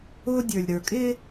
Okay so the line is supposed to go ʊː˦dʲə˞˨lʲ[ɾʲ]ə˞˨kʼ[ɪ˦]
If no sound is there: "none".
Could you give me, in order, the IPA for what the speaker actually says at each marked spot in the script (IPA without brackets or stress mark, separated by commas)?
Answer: ɾ, ɪ˦